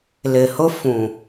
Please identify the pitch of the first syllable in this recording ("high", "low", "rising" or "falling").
low